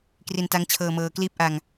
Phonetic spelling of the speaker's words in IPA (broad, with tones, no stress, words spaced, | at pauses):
kri˧nta˦˥ŋt͡ɕʰɤː˧mɤː˧ kliː˦˥p̚ʔa˧ŋ